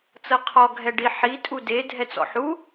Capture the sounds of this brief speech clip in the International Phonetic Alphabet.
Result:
t͡s ɤ qʰ ɔ ɡʱ ɛ ɖ i ħ i tʼ u d e dʱ ɛ t͡s ɔ̰ ħ u

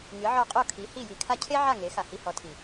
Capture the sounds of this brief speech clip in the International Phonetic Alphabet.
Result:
ŋ ɨ˩˥ ʕ ɔ˧ qʼ o˥˩ kʰ i˩˥ h i˥˩ j i˧ kʰ a˥ cʰ e˥ ʕ a˥˩ ŋ e˩˥ x a˩ h i˧ h ɔ˩˥ tʰ i˩

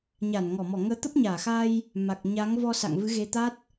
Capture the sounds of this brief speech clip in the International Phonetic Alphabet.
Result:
ɲ a˧˩ n ŋ ɔ˧˩ m ɔ˧˩ ŋ əː˨˦ t̪ ə˦˥ p̚ ɲ aː˧˩ x a˧ j | m a˨˩ k̚ ɲ a˨˦ ŋ v ɔ˧ s a̰˧˨ ŋ v ɨ˨˦ ɣ e˨˦ t̪ a˦˥ t̚

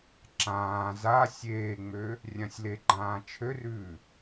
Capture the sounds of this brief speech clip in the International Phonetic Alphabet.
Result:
ǁ ãː z a sʲ eː ŋ͡m ø | rʲ ã sʲ l e ɡ͡ǃ ãː t͡ʃʰ ø r ʉː

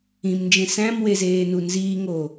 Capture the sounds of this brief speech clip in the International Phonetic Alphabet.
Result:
ĩ m n d͡ʒ ẽ s æ̃ m w e z eː n u n z iː ŋ oː

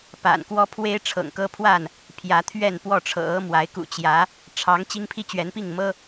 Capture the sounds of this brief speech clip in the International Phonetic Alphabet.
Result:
p a̰˨˩ n k w ɔ˦ pʰ w e˦ ɪ̯ ʈ͡ʂʰ ɤ̰˨˩ ŋ k ɤ˦ pʰ w a˥˨ n | pʰ j ä˨˦ t̪ʰ ɥ ɛ˥˨ n p w ɔ˥˨ ʈ͡ʂʰ ɤ̰˨˩ ɤ˦ m w a˨˦ ɪ̯ k ṵ˨˩ t͡ɕ j ä˨˦ | ʈ͡ʂʰ ɑ˨˦ ŋ t͡ɕ i˦ ŋ pʰ i˦ t͡ɕ ɥ ɛ˨˦ n p i˥˨ ŋ m ɤ˦

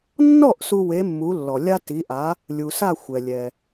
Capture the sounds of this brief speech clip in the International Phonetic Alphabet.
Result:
nː ɔ˥˩ ʔ s u˧ w e˩˥ mː u˩˥ lː ɔ˩ lʲ a˥ t i˩˥ ʔ a˩˥ | lʲ u˩ s a˥˩ xʷ ɛ˩ lʲ ɛ˩

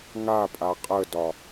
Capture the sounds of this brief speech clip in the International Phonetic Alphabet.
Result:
ŋ a pʼ a qʼ ə d ɒ

